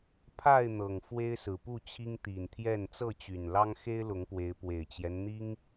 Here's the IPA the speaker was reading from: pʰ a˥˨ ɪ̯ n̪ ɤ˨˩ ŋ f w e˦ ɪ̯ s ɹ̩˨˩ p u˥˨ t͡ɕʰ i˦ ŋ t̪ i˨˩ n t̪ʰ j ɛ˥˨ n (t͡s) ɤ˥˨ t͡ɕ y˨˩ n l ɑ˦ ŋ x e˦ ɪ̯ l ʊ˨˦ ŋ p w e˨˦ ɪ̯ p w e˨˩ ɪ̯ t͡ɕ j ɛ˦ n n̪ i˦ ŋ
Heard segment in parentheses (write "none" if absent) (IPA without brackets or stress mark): t͡s